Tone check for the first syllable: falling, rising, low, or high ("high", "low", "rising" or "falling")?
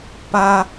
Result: high